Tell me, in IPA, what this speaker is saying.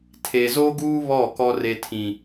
tʰ e˨ z o˦ ɡ uː˦ β ɔ˦˨ k ɔ˦ r e˦ tʰ ĩ˦

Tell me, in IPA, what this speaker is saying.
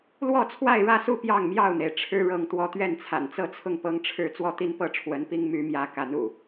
l w ɔ˥˨ t͡sʰ w a˥˨ ɪ̯ ɻ ä˥˨ s u˥˨ p j ɑ˥˨ ŋ m j ɑ˥˨ ʊ̯ n̪ e˩ ɪ̯ ʈ͡ʂʰ ɻ̩˦ ɻ ɤ˨˦ ŋ t̪ w ɔ˥˨ t̪ ɥ ɛ˥˨ n t͡sʰ a̰˨˩ n t͡s ɤ˥˨ t͡sʰ ʊ˥˨ ŋ p ɤ˦ ŋ ʈ͡ʂʰ ɻ̩˥˨ t͡s w ɔ˥˨ t̪ i˦ n p ɤ˦ ʈ͡ʂʰ w ə˨˦ n p i˦ ŋ m y˨˦ m j ä˨˦ k a˨˦ n ṵ˨˩

